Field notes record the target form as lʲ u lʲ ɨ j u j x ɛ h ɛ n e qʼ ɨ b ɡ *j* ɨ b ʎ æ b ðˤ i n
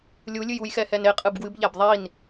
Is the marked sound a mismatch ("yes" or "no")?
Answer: yes